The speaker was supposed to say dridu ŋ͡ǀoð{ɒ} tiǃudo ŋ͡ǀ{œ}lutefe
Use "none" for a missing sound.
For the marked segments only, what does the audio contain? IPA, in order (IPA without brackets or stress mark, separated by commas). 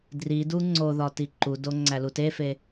ɒ, æ